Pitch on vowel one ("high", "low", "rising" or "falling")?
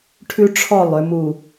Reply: high